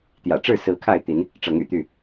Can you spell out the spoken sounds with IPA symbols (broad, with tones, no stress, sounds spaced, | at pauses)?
t̪ j ä̰˨˩ ʈ͡ʂ ɻ̩˥˨ s ɹ̩˨˦ kʰ a˥˨ ɪ̯ t̪ i˨˦ n | ʈ͡ʂ ɤ˨˦ ŋ y̰˨˩ t̪ y˥˨